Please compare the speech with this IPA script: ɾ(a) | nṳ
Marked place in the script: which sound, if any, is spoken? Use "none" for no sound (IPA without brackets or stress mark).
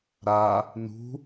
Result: a